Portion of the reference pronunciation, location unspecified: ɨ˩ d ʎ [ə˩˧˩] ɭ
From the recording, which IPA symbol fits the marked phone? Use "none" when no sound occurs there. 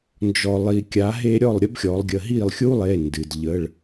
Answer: ə˩˧˩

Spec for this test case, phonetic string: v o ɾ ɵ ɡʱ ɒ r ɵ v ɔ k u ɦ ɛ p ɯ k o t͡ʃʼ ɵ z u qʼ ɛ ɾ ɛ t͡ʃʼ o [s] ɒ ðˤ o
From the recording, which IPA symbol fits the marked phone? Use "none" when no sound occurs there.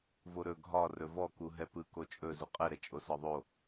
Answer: s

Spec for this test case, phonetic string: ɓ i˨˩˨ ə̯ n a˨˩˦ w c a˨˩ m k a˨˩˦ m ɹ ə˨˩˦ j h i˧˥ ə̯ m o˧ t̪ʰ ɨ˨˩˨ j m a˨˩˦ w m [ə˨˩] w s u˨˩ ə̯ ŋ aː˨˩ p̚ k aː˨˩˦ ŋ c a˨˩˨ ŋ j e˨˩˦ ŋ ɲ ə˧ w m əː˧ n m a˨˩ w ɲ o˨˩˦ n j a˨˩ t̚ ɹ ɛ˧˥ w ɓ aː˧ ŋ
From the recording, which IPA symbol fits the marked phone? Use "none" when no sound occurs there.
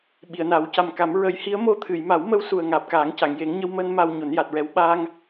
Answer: ə˧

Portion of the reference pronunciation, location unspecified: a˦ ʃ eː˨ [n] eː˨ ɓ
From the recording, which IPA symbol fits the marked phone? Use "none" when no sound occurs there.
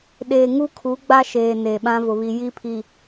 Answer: n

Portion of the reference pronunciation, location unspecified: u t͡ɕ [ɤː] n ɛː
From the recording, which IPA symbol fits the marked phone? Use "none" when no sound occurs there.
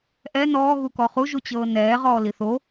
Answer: ɤː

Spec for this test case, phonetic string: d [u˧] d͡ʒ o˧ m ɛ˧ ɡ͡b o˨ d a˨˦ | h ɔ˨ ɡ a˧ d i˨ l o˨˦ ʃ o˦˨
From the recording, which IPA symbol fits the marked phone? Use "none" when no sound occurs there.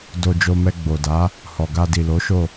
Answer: o˧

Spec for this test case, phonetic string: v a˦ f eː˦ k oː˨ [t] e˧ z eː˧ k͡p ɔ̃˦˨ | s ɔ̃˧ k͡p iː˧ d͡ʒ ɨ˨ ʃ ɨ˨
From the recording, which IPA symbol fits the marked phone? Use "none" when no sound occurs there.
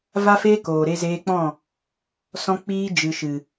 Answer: ɾ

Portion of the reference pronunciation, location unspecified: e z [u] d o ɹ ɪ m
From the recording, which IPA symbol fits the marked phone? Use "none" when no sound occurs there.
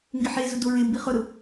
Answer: ʊ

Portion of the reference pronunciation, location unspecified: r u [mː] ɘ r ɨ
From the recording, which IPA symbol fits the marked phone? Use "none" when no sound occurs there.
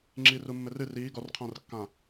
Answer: mː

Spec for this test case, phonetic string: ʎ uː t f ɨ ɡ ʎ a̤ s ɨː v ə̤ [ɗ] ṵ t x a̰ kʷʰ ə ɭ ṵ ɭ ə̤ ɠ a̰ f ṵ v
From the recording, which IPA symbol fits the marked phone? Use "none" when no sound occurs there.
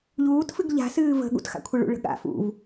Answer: ɠ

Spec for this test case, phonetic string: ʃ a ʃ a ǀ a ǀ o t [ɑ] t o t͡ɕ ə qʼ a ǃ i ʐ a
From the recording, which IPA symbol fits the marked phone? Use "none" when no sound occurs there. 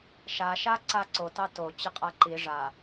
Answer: ɑ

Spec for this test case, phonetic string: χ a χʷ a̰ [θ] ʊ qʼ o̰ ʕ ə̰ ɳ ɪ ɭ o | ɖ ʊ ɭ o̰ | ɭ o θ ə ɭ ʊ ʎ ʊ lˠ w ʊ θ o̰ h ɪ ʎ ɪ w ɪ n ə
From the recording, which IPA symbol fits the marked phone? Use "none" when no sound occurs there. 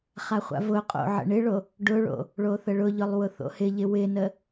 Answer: v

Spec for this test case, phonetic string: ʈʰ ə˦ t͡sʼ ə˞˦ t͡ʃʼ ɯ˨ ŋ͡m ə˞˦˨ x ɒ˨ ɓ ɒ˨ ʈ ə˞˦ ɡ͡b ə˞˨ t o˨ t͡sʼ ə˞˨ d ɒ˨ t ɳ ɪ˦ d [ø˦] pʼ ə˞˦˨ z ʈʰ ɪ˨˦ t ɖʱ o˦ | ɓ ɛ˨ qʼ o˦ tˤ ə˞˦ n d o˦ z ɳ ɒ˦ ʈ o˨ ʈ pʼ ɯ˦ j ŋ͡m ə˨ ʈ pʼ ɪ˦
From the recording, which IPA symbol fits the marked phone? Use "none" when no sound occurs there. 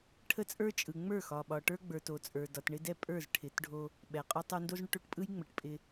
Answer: ɛ˦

